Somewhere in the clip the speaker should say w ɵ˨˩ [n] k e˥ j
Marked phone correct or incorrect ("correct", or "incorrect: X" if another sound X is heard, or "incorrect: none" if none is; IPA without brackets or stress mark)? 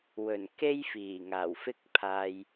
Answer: correct